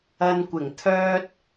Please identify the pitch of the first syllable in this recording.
low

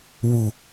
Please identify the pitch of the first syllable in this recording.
low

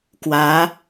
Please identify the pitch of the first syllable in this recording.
rising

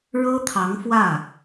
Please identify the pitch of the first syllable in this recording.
high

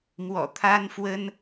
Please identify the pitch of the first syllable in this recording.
low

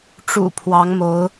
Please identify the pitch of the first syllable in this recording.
low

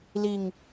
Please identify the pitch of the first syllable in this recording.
low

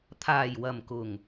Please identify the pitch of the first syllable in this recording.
low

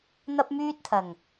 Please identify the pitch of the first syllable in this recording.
high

